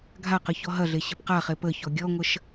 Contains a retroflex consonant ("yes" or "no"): no